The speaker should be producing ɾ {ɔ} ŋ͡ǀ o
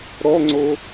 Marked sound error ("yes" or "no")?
no